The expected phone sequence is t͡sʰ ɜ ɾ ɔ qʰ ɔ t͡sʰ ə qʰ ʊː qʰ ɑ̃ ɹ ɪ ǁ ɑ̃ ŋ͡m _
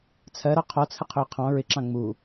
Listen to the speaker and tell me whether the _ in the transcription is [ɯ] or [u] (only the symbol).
u